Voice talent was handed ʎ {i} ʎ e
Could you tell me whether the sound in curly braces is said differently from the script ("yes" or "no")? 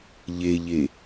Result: yes